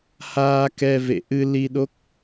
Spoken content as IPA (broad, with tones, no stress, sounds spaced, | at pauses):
h aː˧ k ɛ˧ v ḛ˧˨ ʔ ɨ˧ l i˧ ɗ o˦˥ k̚